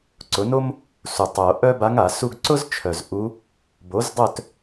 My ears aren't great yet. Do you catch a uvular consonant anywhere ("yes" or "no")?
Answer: no